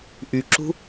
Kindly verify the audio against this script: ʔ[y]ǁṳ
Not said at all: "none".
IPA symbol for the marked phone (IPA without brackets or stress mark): y